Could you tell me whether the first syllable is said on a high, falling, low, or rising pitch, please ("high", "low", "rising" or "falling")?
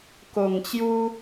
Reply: low